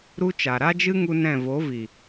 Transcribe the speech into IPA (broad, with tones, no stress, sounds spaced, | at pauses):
ɾ u˦ t͡ʃ a˨ ɾ a˦ d͡ʒ ɨ˦ ŋ u˦ n ɛ̃˦˨ v o˨˦ v i˨